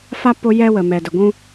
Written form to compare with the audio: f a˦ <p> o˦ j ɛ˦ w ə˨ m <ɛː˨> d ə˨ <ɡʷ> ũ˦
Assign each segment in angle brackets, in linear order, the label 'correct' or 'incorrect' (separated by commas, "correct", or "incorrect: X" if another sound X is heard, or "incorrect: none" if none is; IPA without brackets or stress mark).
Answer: correct, incorrect: ɛ˨, correct